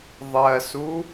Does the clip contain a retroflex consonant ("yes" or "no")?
no